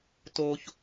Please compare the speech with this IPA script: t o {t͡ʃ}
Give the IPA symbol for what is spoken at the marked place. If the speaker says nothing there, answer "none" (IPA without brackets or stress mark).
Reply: ç